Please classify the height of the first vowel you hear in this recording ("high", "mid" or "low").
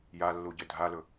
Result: low